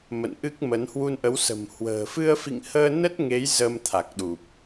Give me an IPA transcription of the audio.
m ə̰˧˨ n ʔ ɨ˦˥ k̚ m ə˨˦ n h w u˧ n ʔ ə˨˦ w s ə̤˨˩ m h w ə̤ː˨˩ f ɨ˧ ə̯ f ḭ˧˨ ŋ h əː˧ n ə˦˥ t̚ ŋ e˨˦ j z ə˧ m t̪ʰ a˨˩ k̚ ɗ u˨˩ p̚

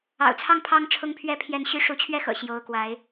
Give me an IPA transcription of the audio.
ɑ̰˨˩ ʊ̯ t͡sʰ ɑ˥˩ ŋ pʰ ɑ˥ ŋ ʈ͡ʂʰ ʊ˥ ŋ pʰ ɥ ɛ˥˧ pʰ j ɛ˥˩ n ɕ y˥ ʂ u˧˥ t͡ɕʰ ɥ ɛ˥ x ɤ̰˨˩ ɕ j o˧˥ ʊ̯ k w a˧˥ ɪ̯

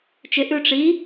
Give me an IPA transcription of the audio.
t͡ʃ ɪ ʔ ʉ ʈ͡ʂ i

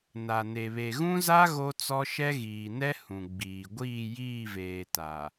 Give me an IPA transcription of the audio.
n a˨ n e˨ β e˨ ɣ ũ˦ z a˦ ɣ o˦ t͡s ɔ˦ ʃ ɛ˦ ɣ iː˨ n ɛ˦ h ũ˨ ɡ͡b iː˨ ɡʷ iː˦˨ j iː˦˨ v eː˨ t a˨

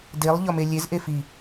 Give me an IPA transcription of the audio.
d e lˠ ʎ ɒ m e lʲ e z ʔ e f i

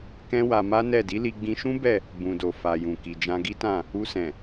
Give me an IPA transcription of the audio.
k ɛ̃˦ w a˧ m a˦ n ɛ˦˨ d i˨˦ l i˧ ɡ͡b ĩ˧ ʃ ũ˦ b ɛ˦˨ | b ũ˨ d o˨ f a˨ j ũ˨ k i˨ d͡ʒ ã˧ ɡ i˦ t ã˦˨ | u˧ s ɛ̃˨

